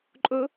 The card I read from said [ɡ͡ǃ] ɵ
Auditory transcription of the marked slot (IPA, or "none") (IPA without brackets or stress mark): ǃʼ